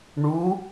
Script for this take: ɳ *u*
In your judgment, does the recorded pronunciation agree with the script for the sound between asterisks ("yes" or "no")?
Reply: yes